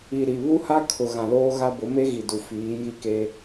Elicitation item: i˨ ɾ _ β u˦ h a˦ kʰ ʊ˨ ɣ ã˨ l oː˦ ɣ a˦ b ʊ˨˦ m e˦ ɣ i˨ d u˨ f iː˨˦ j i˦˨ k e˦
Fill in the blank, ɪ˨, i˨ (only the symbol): i˨